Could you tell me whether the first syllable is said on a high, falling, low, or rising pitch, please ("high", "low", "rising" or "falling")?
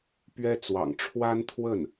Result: high